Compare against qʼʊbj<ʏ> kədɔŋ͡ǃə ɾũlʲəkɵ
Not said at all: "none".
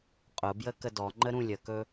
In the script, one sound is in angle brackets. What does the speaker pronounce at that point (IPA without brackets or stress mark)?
ə